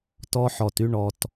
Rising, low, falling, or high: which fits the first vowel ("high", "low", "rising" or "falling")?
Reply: high